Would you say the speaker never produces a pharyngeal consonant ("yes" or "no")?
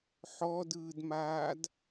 no